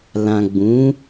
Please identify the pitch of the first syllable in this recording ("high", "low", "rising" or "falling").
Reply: low